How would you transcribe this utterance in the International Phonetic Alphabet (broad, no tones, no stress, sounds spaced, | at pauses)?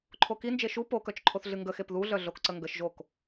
ǃʰ o k i n d͡ʒ e ʃ u p o k œ t͡ʃ ǃʰ o θ ɮ ɨ ŋ ɡ ə x e p ð u ɮ œ ɮ o k ǀ ə ŋ ɡ ə ʃ ʒ o k